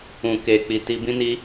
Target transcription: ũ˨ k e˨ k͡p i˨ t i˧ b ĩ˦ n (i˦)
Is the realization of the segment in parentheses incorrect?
no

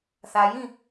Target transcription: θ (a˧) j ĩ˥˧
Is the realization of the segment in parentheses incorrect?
no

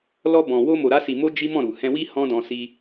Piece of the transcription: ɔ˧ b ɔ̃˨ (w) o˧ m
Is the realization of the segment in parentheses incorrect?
no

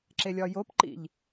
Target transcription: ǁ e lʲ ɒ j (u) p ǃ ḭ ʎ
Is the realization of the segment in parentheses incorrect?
yes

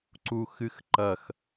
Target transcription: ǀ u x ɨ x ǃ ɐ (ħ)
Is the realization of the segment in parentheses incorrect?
yes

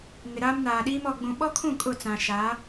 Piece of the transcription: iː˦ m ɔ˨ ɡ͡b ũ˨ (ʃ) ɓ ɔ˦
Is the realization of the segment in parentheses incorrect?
yes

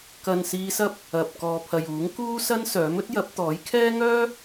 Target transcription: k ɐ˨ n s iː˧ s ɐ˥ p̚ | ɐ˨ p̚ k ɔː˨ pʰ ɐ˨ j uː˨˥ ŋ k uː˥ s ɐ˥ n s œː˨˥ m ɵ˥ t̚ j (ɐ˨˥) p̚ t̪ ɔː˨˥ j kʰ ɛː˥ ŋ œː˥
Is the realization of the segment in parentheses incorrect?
no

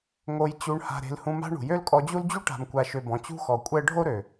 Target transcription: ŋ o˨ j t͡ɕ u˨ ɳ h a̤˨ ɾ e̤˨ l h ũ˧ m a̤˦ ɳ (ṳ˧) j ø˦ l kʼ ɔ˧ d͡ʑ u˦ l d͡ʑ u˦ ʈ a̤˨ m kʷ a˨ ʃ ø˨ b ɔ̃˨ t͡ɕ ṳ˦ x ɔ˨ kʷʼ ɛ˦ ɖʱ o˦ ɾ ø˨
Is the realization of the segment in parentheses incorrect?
yes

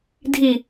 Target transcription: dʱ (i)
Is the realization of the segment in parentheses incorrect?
no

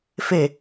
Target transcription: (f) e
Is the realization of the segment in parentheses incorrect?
no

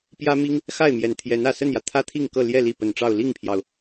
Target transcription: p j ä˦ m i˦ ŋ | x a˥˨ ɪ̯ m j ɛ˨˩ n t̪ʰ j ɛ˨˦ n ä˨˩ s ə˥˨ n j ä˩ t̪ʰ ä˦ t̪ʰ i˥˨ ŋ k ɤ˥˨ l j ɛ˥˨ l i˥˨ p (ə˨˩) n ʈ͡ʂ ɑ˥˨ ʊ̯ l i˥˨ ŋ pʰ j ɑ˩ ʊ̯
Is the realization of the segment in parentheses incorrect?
no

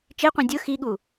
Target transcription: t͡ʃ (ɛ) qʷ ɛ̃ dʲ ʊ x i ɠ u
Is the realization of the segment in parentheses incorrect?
yes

